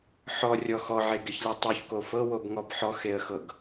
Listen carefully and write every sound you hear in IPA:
ħɔrʲɔ xɔʕeɡeçlʲɤ tˤoçko fɤwobŋɔb ħɔxeə̯xɤɡ

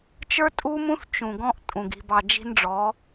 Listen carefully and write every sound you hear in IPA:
t͡ʃə˞˦tʼu˦mũ˦θ t͡ʃũ˨ɡɔ̃˦ʔtʼũ˨ɡ i̤˨bɑ˨ d͡ʒi̤˦nɖ͡ʐɔ˨˦

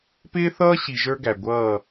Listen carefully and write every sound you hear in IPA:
pɪː˦θʌː˦ ɕi˨ʒə˞˦ɡæ˨ ɡʷʌː˦˨

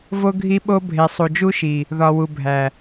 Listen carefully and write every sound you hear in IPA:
vo˦ ɡʱi˦ɓo˦ bʱe˨sˤu˨d͡ʒu˦ʃi˨ | ðɒ˨ wu˨bʱæ˨

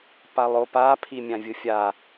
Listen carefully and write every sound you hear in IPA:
palˠopa pʰimʲãvʲɯfʲa

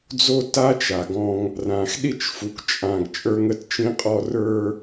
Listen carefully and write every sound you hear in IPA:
d͡zo˦ta˦t͡ʃa˨ɡɔ̃˦ŋ | rã˨xɗi˦˨t͡ʃfu˨kt͡ʃʼã˨ɡ t͡ʃʼə˞˦ŋə˦tt͡ʃĩ˦qʼɔ˦ rə˞˦

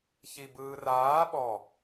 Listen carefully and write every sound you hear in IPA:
çibɯːraː ɓɔ

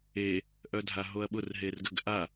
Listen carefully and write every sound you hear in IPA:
e | ʔœdʱaɦoɐ̯ɓʊr ɦerɡəɡ ʔa

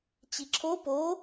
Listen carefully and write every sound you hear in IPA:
t͡ɕiǁʰo po

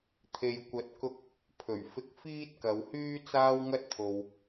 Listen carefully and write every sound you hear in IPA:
t̪ʰe˨jkʷɐ˨˥t̚kʊ˧k̚ | pʰɵ˨˩ɥfɪ˧k̚ fiː˥t̚kɐ˨˧whyː˥ t͡saː˥wŋɐ˥t̚t̪ʰo˨w

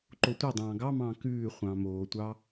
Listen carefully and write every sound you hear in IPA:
ǃotʷɛdˤɑ̃ː ɡɑmɑ̃ː kʉː χʷɑ̃ːmoːtʷɑ

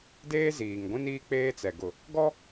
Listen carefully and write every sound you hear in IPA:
deː˦ziː˨ŋɡʷĩ˦niː˦ k͡peː˦t͡sɛ˨ ɡʊ˨ | ɡɔ˦

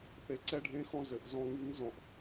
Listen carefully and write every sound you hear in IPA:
θe˩˥ǀɛ˧ɖʱẽ˧˥xɔ̃˧ zɘ˨˩ʔ zɔ̃˧ŋi˧˥ŋ zɔ̃˨˩ʔ

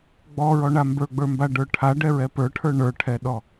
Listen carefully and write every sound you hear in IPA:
ɡ͡bɔɹɔɳa mbə˞ɡ͡bə˞mbaɖə˞ ʈʰaɖɛɹɛ pə˞ʈʰə˞ ɳə˞ʈʰɛɗɔ

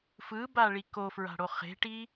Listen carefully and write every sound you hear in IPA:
fɯbaɭi kofɹa̤ɽo χe̤ʈi

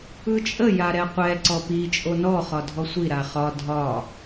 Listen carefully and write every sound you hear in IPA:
ɯt͡ʃʼə jaɾɛqʷɛ ǀɔpi t͡ʃʼonɔ χɒdʱɔsʷi ɾaχɒ dʱɒ

